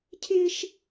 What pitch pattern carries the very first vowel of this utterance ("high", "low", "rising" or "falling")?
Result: high